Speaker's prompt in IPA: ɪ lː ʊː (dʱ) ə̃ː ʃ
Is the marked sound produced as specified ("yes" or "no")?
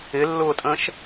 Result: no